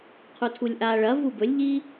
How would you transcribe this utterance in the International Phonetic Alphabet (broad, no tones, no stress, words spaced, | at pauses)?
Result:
qʰutʰulʲʔa ɭɐ vubɵlʲʎi